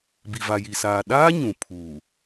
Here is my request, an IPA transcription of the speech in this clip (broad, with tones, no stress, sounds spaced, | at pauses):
b i˨ v a˨ j i˨ s aː˨ ɗ aː˦ ɲ ũ˨ pʰ uː˨